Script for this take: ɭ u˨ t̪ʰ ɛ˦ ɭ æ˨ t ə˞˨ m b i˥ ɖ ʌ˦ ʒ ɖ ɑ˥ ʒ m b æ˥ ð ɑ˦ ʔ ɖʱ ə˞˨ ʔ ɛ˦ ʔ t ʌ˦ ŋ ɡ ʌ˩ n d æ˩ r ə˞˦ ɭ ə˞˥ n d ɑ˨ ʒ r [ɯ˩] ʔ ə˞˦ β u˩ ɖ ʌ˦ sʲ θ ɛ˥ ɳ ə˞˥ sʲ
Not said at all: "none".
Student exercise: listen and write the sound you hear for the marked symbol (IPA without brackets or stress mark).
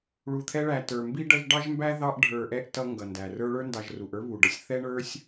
u˩